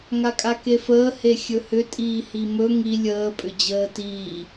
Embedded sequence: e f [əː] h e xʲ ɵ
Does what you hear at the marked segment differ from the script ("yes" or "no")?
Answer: no